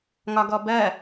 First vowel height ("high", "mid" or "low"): low